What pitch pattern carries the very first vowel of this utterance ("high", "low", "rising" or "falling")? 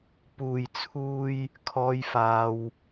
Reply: low